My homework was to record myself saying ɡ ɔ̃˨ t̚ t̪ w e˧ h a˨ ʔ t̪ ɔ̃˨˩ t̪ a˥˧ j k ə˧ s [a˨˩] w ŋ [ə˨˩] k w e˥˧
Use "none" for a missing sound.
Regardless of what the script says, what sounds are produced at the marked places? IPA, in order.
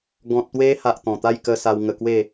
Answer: a˧, ə˧

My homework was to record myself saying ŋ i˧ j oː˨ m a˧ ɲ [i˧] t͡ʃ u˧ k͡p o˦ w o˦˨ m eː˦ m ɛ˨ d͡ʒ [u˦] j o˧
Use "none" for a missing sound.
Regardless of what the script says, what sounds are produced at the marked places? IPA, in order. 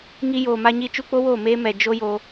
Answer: i˧, o˦

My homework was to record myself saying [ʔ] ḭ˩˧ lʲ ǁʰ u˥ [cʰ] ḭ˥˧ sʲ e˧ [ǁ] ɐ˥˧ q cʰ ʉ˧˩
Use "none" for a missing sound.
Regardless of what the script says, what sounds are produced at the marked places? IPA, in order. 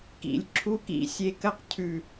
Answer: k, k, k

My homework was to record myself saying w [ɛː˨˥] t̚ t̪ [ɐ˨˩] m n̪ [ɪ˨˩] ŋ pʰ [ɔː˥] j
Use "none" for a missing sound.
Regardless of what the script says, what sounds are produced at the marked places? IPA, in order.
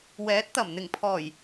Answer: ɛː˨˥, ɐ˨˩, ɪ˨˩, ɔː˨˩

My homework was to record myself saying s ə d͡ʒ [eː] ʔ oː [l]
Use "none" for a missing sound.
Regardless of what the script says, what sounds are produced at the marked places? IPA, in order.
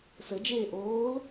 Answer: eː, l

